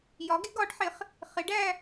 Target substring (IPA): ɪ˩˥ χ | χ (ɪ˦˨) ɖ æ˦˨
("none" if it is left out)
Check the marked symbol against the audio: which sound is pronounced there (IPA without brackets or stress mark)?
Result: ɪ˩˥